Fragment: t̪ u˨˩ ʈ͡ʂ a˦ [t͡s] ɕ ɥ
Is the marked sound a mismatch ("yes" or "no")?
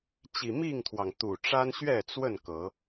yes